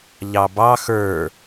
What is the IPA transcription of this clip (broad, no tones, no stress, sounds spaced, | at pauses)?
ʎ ɑ b ɑ x ə˞